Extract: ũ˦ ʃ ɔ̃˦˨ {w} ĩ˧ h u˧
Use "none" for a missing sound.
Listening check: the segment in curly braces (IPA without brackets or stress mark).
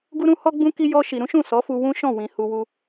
w